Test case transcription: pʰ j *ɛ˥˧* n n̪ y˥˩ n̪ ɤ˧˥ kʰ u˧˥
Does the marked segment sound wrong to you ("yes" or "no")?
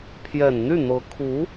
yes